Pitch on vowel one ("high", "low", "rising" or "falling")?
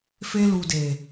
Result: high